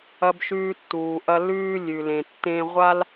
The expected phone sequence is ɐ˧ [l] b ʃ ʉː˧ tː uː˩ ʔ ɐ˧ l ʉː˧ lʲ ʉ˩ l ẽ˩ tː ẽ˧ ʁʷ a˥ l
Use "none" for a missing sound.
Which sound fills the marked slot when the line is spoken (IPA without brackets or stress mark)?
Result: none